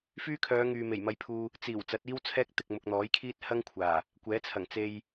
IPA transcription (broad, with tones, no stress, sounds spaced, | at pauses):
f yː˥ kʰ œː˨˧ ŋ yː˨ m e˨˩ j m ɐ˧ j pʰ uː˧ | t͡s iː˨˩ w t͡s ɐ˨˥ t̚ iː˥ w t͡sʰ ɛː˥ k̚ t̪ ɪ˨ k̚ m ʊ˨ k̚ n̪ ɔː˨˥ j kʰ iː˥ t̚ h ɐ˥ ŋ kʷʰ aː˨˩ | kʷ ɛː˨˥ t͡sʰ ɐ˨˩ ŋ t͡s e˧ j